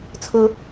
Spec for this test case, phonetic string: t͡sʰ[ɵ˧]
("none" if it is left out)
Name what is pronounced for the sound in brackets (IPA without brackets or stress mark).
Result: ɵ˧